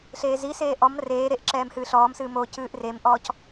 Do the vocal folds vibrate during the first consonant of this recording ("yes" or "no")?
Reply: no